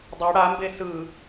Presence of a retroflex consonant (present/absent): present